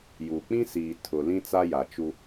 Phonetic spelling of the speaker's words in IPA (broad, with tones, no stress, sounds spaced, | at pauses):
j u˨ k͡p ĩ˦ s iː˨ tʰ ʊ˨ l ĩ˦ t͡s a˦ j a˨ t͡ʃ u˦